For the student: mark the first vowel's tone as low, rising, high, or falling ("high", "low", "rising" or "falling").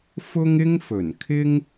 high